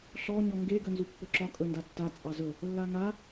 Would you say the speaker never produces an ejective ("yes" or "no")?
no